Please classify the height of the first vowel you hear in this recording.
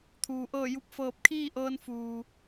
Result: high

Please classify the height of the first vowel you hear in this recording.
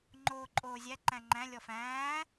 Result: mid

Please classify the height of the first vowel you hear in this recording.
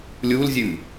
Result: high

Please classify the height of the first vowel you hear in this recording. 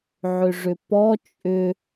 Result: high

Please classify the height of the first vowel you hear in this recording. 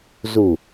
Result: high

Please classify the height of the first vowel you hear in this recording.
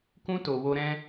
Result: high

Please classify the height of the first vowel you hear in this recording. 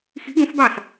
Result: high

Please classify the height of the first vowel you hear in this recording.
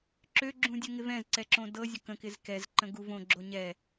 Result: mid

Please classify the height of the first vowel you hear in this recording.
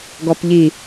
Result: mid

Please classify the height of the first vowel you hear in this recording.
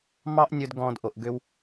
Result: low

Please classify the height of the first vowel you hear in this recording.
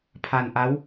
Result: low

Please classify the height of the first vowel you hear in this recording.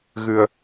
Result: high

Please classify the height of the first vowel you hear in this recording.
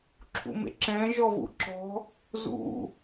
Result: high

